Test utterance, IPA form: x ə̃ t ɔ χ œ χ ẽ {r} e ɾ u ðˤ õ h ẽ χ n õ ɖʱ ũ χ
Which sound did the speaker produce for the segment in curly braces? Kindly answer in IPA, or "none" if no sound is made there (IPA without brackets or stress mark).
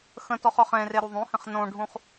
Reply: r